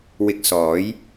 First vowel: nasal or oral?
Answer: oral